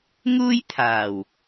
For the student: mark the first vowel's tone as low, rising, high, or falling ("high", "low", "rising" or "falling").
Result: high